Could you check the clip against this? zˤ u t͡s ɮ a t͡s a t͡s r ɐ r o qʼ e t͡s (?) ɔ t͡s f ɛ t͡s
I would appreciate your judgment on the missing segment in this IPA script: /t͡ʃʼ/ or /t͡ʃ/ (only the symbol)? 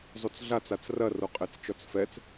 t͡ʃ